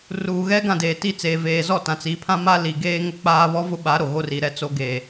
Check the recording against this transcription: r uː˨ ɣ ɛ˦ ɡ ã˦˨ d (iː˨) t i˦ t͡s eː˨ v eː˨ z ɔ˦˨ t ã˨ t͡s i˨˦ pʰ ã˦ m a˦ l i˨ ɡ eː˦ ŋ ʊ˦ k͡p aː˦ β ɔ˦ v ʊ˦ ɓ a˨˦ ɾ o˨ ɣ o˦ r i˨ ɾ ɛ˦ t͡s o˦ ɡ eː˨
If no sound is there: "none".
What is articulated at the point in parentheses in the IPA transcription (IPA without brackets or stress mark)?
eː˨